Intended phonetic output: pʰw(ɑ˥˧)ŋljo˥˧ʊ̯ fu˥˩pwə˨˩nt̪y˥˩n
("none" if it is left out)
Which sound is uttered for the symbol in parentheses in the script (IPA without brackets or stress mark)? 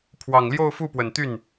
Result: ɑ˨˩